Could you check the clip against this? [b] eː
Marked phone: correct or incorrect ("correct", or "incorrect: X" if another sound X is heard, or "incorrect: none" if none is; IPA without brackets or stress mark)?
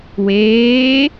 incorrect: w